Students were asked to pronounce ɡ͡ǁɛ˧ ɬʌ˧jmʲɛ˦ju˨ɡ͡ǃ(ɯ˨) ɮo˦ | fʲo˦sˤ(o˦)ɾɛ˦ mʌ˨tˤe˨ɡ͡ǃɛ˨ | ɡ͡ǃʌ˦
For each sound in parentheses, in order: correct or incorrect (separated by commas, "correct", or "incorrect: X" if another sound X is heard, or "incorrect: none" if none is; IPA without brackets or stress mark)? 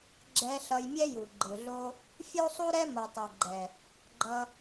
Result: correct, incorrect: u˦